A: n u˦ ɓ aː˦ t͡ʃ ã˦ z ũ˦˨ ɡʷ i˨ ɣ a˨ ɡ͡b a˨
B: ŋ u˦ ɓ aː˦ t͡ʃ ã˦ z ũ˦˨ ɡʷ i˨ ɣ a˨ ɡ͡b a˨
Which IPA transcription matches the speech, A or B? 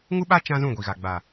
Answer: B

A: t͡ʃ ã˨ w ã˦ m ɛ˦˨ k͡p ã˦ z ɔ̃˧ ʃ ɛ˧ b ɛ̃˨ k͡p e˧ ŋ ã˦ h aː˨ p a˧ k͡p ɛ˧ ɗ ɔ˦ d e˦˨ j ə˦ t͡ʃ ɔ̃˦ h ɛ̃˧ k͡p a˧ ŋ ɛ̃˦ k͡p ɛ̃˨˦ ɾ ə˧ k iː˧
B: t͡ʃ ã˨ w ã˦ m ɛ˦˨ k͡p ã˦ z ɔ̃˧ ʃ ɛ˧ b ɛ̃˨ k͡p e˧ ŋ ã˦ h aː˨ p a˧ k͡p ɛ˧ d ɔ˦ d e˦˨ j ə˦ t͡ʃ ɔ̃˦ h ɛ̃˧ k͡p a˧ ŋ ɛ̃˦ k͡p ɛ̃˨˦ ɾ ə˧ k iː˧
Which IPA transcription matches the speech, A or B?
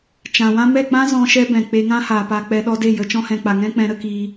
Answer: A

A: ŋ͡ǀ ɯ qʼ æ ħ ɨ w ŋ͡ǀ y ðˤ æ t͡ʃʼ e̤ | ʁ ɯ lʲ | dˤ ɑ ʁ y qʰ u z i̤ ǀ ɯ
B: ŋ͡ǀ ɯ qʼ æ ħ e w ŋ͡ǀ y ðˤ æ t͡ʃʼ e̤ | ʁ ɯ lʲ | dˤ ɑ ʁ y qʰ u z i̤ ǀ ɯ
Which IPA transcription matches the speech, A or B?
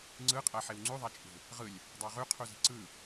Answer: B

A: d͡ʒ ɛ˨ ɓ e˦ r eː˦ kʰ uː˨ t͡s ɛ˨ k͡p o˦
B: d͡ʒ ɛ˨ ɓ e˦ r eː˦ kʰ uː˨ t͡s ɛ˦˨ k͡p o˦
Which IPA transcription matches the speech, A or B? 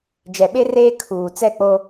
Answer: B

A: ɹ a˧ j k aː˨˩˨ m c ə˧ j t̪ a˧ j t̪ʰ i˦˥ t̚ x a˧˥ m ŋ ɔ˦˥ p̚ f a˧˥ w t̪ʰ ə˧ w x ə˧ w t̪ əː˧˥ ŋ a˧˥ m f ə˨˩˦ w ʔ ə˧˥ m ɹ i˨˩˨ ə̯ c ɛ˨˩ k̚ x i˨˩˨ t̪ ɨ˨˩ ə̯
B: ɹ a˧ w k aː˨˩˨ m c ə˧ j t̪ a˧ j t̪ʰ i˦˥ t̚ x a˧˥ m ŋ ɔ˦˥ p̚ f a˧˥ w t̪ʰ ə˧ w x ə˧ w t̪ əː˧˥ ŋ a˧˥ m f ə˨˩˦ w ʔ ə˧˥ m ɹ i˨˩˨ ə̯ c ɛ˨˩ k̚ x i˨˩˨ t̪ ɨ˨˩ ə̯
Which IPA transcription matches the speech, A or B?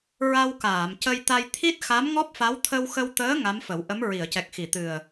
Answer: B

